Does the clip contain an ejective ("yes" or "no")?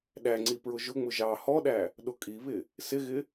yes